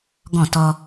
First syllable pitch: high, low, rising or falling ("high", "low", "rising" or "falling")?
falling